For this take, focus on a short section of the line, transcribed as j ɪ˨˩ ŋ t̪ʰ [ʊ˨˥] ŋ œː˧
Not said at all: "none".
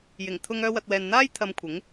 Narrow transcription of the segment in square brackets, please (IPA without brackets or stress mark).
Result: ʊ˧